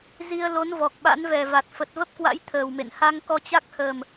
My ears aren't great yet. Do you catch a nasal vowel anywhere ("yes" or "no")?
no